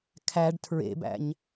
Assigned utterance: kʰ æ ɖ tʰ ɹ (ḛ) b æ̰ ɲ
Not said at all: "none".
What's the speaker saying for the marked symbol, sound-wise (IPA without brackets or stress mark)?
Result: ḛ